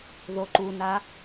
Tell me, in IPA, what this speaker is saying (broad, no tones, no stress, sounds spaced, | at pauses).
ð o ǃ u n a